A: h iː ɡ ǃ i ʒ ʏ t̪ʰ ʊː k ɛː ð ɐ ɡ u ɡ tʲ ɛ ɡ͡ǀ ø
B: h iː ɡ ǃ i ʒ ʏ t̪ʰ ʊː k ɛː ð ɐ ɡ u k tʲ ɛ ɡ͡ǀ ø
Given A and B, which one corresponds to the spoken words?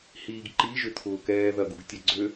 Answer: A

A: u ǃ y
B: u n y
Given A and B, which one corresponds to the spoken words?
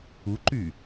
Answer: A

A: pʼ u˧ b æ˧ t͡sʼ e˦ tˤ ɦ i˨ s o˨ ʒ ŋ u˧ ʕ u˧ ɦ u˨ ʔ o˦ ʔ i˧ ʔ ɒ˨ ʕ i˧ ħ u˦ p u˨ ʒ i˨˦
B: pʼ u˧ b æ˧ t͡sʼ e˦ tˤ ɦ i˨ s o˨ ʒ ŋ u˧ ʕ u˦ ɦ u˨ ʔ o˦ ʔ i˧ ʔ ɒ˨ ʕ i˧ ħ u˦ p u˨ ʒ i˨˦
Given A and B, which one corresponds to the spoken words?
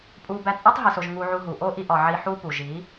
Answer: A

